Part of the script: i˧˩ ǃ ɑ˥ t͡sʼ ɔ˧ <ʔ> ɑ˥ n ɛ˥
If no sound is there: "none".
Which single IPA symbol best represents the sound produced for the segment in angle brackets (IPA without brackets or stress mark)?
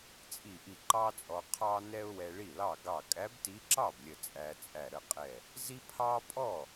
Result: qʰ